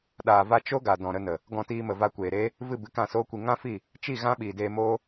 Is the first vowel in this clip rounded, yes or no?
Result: no